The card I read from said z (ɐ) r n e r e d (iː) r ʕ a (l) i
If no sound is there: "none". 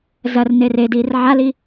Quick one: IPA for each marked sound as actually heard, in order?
ɐ, iː, l

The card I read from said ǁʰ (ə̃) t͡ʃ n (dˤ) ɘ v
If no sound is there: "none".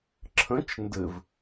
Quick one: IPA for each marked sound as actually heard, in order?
ə̃, d

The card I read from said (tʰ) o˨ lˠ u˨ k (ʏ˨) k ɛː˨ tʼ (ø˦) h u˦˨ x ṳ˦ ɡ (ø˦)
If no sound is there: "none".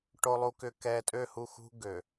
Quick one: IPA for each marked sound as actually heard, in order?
ʈ, ʏ˨, ø˦˨, ø˨

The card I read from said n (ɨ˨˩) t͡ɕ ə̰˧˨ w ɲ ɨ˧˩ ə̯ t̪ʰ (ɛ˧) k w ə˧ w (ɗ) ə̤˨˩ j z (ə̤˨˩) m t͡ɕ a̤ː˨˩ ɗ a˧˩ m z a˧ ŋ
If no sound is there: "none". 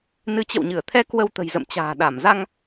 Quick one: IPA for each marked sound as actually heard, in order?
ɨ˨˦, ɛ˧, t̪, ə̰˧˨

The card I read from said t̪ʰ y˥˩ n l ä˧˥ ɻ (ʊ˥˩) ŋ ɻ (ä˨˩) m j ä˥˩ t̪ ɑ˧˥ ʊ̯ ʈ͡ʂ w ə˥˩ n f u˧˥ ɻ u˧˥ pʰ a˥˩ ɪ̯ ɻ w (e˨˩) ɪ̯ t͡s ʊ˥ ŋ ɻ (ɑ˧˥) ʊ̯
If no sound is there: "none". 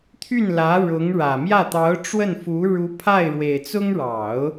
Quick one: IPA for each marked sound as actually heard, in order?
ʊ˧˥, ä˨˩, e˨˩, ɑ˨˩˦

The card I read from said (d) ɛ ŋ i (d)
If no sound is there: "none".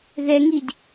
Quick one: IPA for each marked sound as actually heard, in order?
ð, d

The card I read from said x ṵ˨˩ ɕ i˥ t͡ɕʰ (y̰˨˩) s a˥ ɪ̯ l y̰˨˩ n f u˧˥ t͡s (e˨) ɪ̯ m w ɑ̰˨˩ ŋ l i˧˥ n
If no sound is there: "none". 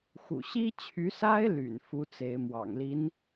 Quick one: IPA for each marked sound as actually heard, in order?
y˧˥, e˧˥

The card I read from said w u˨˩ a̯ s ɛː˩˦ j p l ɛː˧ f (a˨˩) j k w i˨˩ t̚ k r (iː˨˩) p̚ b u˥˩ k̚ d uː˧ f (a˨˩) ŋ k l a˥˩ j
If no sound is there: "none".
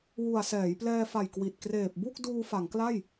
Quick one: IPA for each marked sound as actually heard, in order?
a˨˩, eː˨˩, a˩˦

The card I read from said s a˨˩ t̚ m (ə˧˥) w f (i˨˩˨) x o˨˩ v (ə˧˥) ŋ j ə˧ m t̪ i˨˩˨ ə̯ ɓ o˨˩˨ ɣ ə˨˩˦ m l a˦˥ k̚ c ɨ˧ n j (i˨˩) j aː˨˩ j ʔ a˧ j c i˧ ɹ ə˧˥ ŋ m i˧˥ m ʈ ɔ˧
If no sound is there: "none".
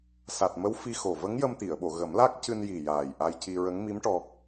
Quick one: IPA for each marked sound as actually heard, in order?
ə˧˥, i˧, ə˧˥, i˨˩

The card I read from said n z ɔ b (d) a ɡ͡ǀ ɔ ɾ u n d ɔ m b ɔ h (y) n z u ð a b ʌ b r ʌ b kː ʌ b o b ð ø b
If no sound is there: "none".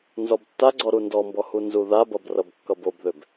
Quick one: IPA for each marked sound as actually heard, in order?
tː, u

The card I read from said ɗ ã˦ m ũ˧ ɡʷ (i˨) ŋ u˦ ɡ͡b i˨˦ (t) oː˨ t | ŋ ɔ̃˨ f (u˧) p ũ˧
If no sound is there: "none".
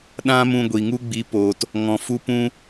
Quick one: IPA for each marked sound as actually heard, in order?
i˨, p, u˧

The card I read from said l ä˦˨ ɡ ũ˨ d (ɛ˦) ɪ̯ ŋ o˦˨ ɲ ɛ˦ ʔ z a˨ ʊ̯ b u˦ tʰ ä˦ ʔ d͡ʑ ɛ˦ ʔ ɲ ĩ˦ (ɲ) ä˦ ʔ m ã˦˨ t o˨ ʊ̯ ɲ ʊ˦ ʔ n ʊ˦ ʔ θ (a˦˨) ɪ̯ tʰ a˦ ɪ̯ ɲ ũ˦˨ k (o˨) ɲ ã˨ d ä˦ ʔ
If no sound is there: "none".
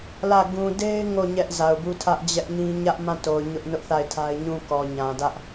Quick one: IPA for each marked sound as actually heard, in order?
e˦, ɲ, a˦˨, ɔ˨

